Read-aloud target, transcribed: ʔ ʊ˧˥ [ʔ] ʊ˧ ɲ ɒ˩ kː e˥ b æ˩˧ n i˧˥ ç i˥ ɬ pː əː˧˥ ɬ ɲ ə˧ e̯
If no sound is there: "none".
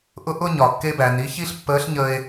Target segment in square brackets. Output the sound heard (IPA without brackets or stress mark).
ʔ